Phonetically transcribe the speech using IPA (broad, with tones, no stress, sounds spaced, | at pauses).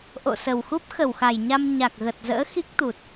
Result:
ʔ o̰˧˨ s ə˨˩ w x u˦˥ p̚ x ə˧˩ w x a˧˩ j ɲ a˧ m ɲ a˨˩ k̚ ɣ ə˨˩ t̚ z ə̰ː˧˥ x i˦˥ k̚ t̪ u˨˩ t̚